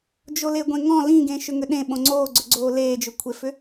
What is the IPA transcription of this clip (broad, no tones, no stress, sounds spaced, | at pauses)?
d͡ʒ o l e ɡʷ ẽ ŋ ɔ̃ l ĩ ɡ ẽ ʃ ʏ ŋ ʏ ɗ ẽ ɓ õ ŋ͡ǀ oː ɡ͡ǀ ʏ ɡ͡ǀ oː l eː d͡ʒ ʏ kʷʰ e f ʏ